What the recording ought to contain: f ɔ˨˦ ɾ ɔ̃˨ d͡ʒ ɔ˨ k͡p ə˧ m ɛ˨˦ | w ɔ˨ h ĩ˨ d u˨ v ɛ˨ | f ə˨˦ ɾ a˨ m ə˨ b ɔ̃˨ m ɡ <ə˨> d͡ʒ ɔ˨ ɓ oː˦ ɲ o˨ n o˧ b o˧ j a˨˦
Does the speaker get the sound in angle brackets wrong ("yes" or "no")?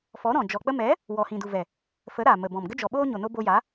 yes